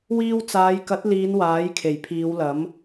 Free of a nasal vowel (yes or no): yes